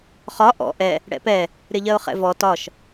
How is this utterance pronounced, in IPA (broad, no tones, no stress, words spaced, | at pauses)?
χɒ ʔɔ̰ ʔɛ | ɽɛ̰pɛ | ɾɪʎɜʊ̯χɛ̰vɔ tɒʃ